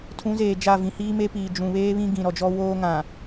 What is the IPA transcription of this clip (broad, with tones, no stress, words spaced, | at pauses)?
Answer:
tʰũ˨˦zeː˨ d͡ʒa˦˨vĩ˨hiː˦ me˦piː˨ d͡ʒũ˨βeː˦βĩ˦ ɡĩ˨ɾɔ˨d͡ʒɔ˦ woː˦ ŋã˨